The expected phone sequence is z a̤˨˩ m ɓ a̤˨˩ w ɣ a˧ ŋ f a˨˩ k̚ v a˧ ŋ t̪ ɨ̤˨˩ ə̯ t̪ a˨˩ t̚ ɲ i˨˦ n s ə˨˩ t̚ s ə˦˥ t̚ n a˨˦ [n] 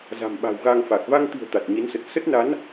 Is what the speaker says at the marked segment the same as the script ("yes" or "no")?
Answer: yes